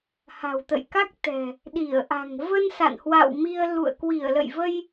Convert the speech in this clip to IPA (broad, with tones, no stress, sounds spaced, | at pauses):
h a̤˨˩ w t̪ ə̰˧˨ j k a˦˥ k̚ t̪ ɛ̤˨˩ | ɗ i˧˩ ə̯ ʔ a̤˨˩ ŋ v ə˧ n s a̰˧˨ n h w a̰˧˨ w m i˧ ə̯ l ṵ˧˨ ə̯ k w i˧˩ ə̯ l ə̰˧˨ j v ə˧ j